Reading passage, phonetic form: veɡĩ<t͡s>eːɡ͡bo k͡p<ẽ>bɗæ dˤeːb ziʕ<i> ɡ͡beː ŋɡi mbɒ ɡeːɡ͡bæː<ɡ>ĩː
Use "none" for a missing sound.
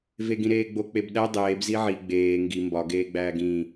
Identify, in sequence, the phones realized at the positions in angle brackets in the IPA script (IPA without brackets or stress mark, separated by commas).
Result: ɾ, e, i, ɡ